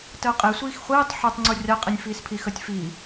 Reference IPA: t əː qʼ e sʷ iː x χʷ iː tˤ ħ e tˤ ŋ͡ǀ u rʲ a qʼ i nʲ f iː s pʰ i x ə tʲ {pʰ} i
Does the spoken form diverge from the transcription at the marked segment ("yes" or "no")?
yes